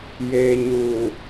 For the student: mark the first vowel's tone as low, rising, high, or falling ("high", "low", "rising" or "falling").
low